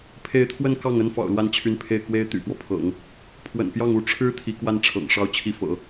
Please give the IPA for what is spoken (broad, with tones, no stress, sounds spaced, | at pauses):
pʰ e˧˥ ɪ̯ t̪ʰ w ə˥˧ n k ɑ˥˩ ŋ ə˥ n f ɑ̰˨˩ ʊ̯ l w a˥˩ n t͡ɕʰ y˧˥ n pʰ e˥˩ ɪ̯ k w e˥ ɪ̯ t̪ y̰˨˩ p w ɔ˦ pʰ ɤ̰˨˩˦ ŋ | pʰ w ə̰˨˩ n p j ɑ˥˩ ŋ u˥ ʈ͡ʂʰ ɻ̩˥ t̪ʰ i˧˥ k w a˥˩ n ʈ͡ʂʰ ɤ̰˨˩ ŋ ʂ ɑ˥ ʊ̯ t͡ɕʰ i˥˩ f ɤ̰˨˩˦